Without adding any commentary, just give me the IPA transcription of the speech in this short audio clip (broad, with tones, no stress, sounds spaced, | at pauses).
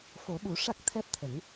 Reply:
f o˨˩˦ ɓ u˨˩˦ ʂ a˦˥ k̚ t̪ʰ ɛ˦˥ p̚ t̪ʰ ə˨˩˦ ŋ